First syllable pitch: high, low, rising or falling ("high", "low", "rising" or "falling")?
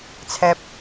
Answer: high